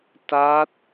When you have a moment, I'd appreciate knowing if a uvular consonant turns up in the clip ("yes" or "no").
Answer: no